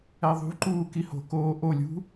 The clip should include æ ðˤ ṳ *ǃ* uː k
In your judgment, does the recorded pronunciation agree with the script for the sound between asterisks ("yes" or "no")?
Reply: yes